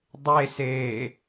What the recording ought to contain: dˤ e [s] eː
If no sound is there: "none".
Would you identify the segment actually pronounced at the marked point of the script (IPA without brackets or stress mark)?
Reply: s